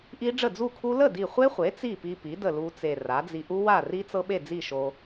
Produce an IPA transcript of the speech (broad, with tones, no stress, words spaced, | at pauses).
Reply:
ʔi˦˥ɖ͡ʐə˥˩ d͡zu˥˩kʰu˦˥ lə˥˩di˧˩χʷe˦˥χʷe˩˥ t͡si˥˩pi˧pi˩˥ də˥˩lu˦˥t͡se˧˩ ra˩˥d͡zi˧ ʔu˦˥wa˥˩ri˦˥t͡sɤ˦˥ ɓe˥˩d͡zi˥˩ʃo˧